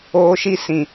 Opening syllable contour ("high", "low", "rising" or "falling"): high